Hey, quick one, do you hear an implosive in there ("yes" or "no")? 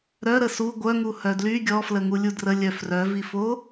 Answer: no